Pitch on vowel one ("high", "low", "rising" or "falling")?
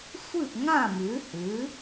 falling